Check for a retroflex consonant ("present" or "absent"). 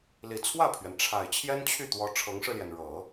present